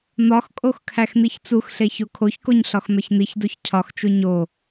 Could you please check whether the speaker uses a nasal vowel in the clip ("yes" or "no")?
no